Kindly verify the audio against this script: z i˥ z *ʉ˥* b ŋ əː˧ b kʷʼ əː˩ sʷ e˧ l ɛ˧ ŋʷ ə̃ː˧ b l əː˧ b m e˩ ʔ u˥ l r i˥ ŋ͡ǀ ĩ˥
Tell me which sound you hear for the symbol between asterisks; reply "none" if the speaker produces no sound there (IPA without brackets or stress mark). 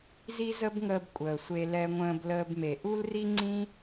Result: ə˥